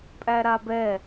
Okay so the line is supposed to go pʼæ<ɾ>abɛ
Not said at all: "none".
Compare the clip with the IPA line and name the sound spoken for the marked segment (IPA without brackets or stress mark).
ɾ